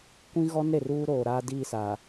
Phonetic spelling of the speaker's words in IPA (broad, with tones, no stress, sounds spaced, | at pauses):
kʷ ĩ˦ ɣ ɔ˦ n ɾ e˨ r uː˦ ɾ oː˨ ɾ aː˦ d iː˦˨ s a˨